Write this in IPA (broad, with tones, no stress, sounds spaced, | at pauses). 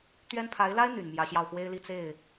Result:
t̪ ɥ ɛ˥ n pʰ a˧˥ ɪ̯ l a˥ ɪ̯ n̪ y˨˩ n m j ä˧˥ ɕ j ɑ˥˩ ʊ̯ x w e˥ ɪ̯ l i˥˧ t͡s e˥˩ ɪ̯